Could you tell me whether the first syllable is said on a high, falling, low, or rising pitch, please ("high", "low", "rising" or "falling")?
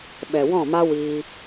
low